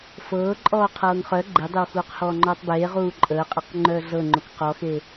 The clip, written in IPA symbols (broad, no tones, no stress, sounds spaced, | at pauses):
f ɤː ǃʼ ɔː qʰ ɤː ŋ χ œ ɡ͡ǃ e dˤ e w x uː q h ɔː ŋ͡ǃ ɔː tˤ b eː ʁ uː ǃʼ əː qʼ e q ŋ͡ǃ œː ɮ ɤ ŋ͡ǃ o k q ɔ x e